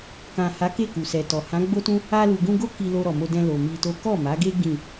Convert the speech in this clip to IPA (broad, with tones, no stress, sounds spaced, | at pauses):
k ã˨ h a˨˦ k e˦˨ k u˨ s ɛ˨ t ɔ˨ h ã˨˦ ɡ͡b o˦ t ũ˦ | a˧ l u˨ ɡ ũ˧ ɡ o˦ k i˧ l o˧ ɾ ɔ˨ m o˧ d ɛ̃˧ l o˨ m i˧ t o˦ k ɔ˦˨ m a˨˦ ɡ e˦ ɡ ĩ˦˨